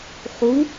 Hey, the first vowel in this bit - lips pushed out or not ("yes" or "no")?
yes